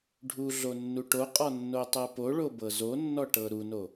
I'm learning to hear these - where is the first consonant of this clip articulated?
retroflex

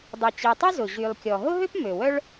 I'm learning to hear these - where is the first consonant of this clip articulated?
tongue tip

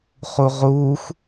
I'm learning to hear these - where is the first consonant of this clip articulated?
uvula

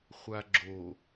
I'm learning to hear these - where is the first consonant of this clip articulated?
uvula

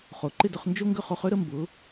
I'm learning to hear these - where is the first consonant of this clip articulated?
uvula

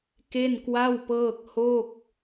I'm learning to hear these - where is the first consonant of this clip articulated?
velum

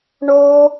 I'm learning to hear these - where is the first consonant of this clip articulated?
retroflex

